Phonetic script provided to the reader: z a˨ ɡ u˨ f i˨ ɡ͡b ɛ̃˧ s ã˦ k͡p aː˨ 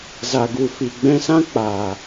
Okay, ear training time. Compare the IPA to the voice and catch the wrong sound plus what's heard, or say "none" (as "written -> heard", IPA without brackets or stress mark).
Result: none